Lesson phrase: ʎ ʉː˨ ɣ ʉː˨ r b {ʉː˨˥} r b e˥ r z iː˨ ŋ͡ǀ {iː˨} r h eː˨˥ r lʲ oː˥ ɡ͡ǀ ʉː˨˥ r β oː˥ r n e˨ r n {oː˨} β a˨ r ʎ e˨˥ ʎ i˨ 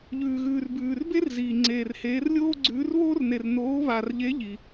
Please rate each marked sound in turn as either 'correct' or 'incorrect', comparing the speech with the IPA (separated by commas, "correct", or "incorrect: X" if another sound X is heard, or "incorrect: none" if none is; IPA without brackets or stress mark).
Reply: incorrect: ʉː˨, incorrect: eː˨, incorrect: oː˨˥